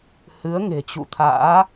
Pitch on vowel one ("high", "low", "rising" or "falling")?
rising